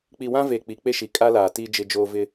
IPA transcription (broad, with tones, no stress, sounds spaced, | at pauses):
k͡p i˨ w ã˦ v e˨ k͡p i˨ k͡p e˦ ʃ i˨ kʼ a˦ l aː˨ t iː˦ d͡ʒ ɪ˦ d͡ʒ oː˦ v ɪ˦